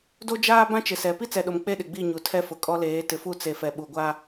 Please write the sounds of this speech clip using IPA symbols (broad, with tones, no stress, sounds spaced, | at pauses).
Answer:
d o˦ d͡ʒ aː˦ b ã˦ t͡ʃ ɪ˨ s ɛ˨ p i˦ t͡s ɛ˨ ɗ o˨ m k͡p e˦ ɗ ɪ˨ ɡ͡b i˦˨ ɲ u˨ tʰ ɛ˦ f ʊ˨ kʼ ɔ˦ l eː˨˦ t ɪ˨ f u˦˨ t͡s e˨ f ɛ˨ ɓ u˨ ɡʷ a˦